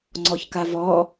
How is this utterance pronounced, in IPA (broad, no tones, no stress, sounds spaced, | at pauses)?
ŋ͡ǀ ɔ ç k a v ɔ